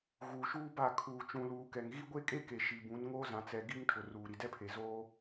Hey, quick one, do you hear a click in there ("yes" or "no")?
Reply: no